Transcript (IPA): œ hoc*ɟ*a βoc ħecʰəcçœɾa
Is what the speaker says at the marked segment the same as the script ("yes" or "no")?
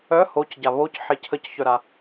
yes